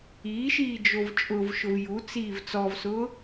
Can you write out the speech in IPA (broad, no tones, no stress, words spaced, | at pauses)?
iːʃiːd͡ʒov t͡ʃʼʊvʃʊv jut͡siːv t͡sɔvsʊː